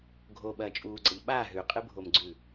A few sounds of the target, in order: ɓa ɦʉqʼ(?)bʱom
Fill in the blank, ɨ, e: ɨ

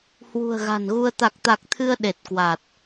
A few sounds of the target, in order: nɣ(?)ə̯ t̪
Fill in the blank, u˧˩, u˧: u˧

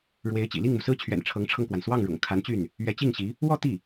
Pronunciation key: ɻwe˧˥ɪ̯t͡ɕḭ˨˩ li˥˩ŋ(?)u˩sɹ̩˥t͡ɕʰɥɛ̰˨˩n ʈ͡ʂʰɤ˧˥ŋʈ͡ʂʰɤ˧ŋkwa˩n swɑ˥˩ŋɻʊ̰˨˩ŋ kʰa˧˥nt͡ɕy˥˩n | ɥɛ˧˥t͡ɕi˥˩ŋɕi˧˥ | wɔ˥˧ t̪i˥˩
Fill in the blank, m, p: m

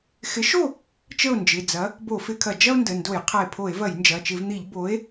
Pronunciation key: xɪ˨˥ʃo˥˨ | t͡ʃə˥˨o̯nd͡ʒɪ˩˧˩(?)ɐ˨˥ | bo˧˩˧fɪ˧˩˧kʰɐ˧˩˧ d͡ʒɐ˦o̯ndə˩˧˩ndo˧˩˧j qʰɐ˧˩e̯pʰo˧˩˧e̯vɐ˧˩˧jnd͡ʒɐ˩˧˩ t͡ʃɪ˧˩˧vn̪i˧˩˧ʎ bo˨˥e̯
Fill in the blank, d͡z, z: d͡z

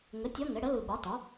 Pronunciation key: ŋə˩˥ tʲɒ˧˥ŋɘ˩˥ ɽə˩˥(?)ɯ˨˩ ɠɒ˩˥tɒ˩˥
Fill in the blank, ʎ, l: l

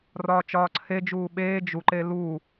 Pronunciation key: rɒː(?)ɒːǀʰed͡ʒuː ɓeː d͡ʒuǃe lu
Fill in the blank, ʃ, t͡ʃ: t͡ʃ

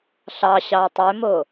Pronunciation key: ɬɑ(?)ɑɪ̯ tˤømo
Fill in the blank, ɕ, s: ɕ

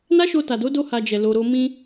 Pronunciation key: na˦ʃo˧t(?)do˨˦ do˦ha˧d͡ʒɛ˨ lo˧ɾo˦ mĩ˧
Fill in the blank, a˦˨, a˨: a˨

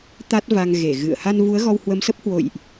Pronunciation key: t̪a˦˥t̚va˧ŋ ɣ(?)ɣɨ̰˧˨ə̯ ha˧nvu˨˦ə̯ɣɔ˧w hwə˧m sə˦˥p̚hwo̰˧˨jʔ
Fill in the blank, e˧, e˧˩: e˧˩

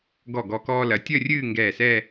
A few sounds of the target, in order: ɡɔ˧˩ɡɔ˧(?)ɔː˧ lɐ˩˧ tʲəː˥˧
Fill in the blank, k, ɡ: k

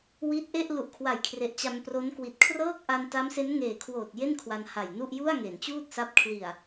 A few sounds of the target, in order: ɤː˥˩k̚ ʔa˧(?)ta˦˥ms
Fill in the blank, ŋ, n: n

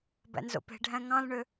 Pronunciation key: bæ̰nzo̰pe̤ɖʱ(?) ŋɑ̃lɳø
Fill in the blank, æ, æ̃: æ̃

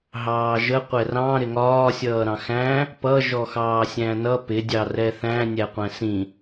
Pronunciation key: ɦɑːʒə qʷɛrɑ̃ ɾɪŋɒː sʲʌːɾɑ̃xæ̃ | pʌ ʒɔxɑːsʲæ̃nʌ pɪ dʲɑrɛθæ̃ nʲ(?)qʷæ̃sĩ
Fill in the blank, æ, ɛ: æ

